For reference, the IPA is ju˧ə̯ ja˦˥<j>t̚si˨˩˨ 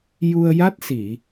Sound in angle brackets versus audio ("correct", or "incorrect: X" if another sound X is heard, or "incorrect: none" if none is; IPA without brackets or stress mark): incorrect: none